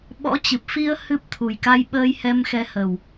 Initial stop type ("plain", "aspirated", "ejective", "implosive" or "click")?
implosive